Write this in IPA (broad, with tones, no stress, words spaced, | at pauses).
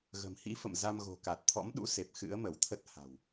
ɣə̤˨˩mhḭ˧˥ fə̰˧˨mza˧m ɣo̤˨˩ka˨˩t̚ t̪ʰɔ̰˧˥mɗṵ˧˥se˨˩p̚ xɨ̰˧˥ə̯mə˧˩wt̪ʰə˦˥t̚ ha̤˨˩w